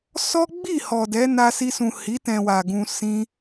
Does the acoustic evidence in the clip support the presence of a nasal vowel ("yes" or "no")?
yes